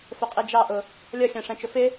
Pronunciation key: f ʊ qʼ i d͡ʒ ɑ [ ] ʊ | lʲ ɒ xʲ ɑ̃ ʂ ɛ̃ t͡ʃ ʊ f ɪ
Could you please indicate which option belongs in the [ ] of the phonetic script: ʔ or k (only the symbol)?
ʔ